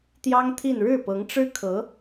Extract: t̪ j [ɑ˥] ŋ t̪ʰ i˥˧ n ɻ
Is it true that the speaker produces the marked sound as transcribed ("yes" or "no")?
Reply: yes